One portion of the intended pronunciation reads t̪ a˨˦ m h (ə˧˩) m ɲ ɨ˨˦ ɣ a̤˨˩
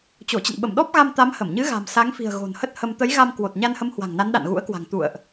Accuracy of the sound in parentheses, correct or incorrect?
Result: correct